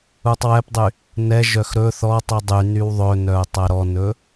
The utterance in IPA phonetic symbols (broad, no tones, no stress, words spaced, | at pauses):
utˤwɛpdˤy | nɛʒœx ɾɵ θɔtˤi dˤy nywðˤɵnœʊ̯ tˤæɾɔnɵ